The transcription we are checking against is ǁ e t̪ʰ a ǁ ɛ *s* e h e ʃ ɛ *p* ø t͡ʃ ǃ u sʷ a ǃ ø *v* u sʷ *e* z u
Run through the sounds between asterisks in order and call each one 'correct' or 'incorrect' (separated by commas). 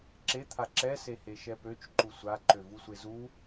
correct, correct, correct, correct